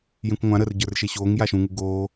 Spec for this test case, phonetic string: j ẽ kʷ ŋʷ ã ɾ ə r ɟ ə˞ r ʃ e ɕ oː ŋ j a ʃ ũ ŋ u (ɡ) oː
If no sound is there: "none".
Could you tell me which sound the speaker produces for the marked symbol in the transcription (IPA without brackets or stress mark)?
ɡ